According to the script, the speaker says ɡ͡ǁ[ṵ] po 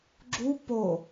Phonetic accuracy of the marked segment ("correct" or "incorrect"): incorrect